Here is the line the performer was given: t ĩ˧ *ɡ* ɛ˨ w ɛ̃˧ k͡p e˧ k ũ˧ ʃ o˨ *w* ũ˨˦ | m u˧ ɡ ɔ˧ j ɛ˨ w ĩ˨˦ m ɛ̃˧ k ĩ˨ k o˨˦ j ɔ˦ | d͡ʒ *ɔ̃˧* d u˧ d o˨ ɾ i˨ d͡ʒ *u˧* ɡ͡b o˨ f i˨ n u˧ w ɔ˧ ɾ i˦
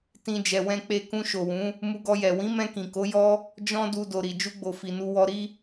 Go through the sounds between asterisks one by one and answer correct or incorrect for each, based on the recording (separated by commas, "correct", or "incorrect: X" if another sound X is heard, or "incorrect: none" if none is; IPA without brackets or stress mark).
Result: incorrect: d͡ʒ, correct, correct, correct